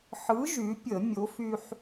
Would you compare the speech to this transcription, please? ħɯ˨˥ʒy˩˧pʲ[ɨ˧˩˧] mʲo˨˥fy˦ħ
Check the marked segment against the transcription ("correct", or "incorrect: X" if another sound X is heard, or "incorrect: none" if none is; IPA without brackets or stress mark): incorrect: ə˧˩˧